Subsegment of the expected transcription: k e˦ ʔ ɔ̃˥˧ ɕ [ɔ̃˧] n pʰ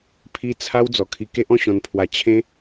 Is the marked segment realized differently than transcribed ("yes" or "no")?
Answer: no